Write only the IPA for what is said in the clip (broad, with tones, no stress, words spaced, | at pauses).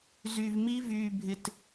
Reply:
zy˧vmi˦ vyː˧bʱɪ˧t